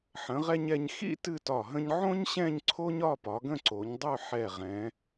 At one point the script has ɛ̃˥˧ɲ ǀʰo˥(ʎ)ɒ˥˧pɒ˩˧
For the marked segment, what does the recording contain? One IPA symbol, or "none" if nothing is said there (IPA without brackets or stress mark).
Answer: ɲ